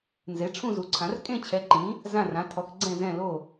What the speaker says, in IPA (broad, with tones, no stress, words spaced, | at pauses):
nze˨˥ʈ͡ʂʰũ˥˧zu˨˥ǀʰã˨˥r kʼẽ˥˧t͡ɕʰɛ˨˥ǃĩ˨˥ | zã˥˧rã˨˥tʰɔ˨˥k ɡ͡ǀɛ̃˥˧zɛ̃˥˧lo˥˧